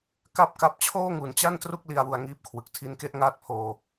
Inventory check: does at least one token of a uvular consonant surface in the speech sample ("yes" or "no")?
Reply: no